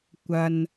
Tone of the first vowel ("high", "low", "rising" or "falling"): low